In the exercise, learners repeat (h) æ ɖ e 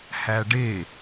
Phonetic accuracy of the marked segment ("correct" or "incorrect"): correct